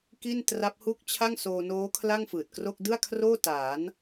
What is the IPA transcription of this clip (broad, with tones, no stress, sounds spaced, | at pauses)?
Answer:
k i˥˩ n t r a˦˥ p̚ h u˥˩ k̚ t͡ɕʰ a˥˩ ŋ s oː˧ n oː˦˥ kʰ l a˥˩ ŋ f ɯː˨˩ t̚ k r o˥˩ k̚ d ɯ˥˩ a̯ kʰ r oː˥˩ t aː˩˦ n